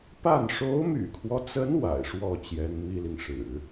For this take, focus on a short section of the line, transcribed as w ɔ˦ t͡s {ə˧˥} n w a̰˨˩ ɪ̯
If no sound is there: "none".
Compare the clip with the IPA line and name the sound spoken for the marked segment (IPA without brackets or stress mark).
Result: ə˧˥